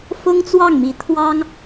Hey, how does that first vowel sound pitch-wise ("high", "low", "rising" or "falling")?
high